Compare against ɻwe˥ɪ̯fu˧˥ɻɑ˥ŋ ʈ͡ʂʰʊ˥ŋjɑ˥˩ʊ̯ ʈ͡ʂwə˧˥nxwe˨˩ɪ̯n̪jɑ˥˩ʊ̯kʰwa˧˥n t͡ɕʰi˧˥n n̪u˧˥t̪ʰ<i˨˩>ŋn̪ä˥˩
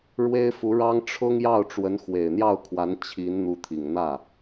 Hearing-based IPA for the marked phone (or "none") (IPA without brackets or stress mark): i˨˩